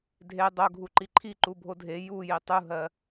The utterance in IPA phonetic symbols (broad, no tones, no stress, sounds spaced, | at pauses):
dʱ e dˤ o ɡʱ u ǃ i ǃʰ i ǃ u bʱ o dʱ e j u j i tˤ u ɦ ɜ